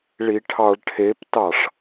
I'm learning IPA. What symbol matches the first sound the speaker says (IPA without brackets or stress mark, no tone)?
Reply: ɭ